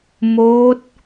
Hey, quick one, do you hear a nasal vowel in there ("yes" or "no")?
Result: no